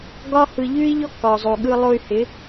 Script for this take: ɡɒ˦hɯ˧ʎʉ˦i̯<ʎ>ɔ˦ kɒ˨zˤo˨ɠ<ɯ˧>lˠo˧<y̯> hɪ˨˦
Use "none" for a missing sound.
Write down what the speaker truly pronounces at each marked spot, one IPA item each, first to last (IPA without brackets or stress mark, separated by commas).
ʎ, ɯ˧, y̯